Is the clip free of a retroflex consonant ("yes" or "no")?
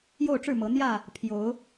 no